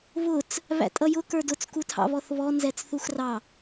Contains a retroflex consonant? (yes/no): no